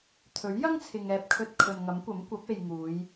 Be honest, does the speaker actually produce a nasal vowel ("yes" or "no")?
no